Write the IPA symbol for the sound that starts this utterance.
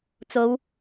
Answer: t͡s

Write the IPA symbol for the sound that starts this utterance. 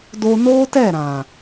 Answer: d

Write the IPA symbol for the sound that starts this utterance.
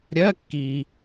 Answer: ɾʲ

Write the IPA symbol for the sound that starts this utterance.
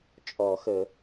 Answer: t͡ʃʼ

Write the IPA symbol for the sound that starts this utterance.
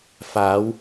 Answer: f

